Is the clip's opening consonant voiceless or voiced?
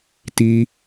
voiceless